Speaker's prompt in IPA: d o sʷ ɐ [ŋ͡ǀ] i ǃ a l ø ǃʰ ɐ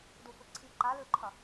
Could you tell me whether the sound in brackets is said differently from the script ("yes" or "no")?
yes